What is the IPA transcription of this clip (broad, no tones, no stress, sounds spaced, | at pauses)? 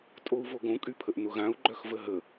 tʼ o u̯ v o ɡ õ kʼ y pʰ ə ʔ n ʊ ɣ ã u̯ ɡ͡ǃ œ x v ə ɦ ə